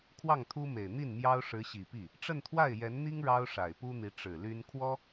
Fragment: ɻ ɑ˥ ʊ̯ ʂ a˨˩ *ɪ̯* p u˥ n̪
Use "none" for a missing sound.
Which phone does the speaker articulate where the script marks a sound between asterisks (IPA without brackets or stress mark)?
ɪ̯